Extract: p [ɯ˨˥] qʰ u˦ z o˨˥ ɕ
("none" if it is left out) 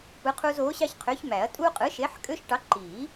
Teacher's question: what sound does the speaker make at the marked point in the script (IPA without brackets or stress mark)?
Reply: ɯ˨˥